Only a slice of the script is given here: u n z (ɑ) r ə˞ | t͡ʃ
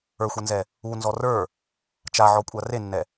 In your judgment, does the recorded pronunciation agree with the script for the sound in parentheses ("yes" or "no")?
no